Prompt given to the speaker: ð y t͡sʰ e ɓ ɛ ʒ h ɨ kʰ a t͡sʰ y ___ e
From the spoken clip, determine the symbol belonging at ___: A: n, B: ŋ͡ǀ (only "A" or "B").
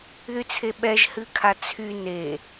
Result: A